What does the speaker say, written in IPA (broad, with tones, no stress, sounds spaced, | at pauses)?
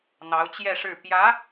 n̪ ɑ˧˥ ʊ̯ t͡ɕ j ɛ˥˧ ʂ ɻ̩˥˩ p j ä˧˥